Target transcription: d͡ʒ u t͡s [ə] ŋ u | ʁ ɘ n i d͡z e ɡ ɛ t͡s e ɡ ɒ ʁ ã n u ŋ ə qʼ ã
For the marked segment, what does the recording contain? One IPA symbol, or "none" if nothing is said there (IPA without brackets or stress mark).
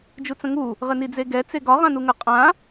ə̃